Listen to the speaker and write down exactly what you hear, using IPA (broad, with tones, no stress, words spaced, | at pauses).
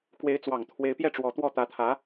kwe˧˥ɪ̯t͡swɑ˨˩ŋ t̪ʰwe˧˥ɪ̯pjɛ˥˩ʈ͡ʂwɔ˧˥t̪wɔ˥˩ t̪ä˧˥t̪ʰä˧˥